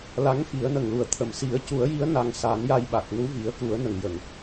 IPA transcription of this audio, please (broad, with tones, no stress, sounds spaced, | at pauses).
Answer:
l a˧˥ ŋ f i˨˩˦ ə̯ n ə˨˩ ŋ l u˨˩ ə̯ t̪ʰ ə˨˩ m s i˨˩˦ ə̯ c u˨˩˦ ə̯ j i˧˥ ə̯ n a˧ ŋ s a˨˩˦ n j a˧ j ɓ a˨˩ k̚ n u˧˥ v i˨˩˦ ə̯ k u˨˩˦ ə̯ n ə˨˩ ŋ j ə˨˩˨ ŋ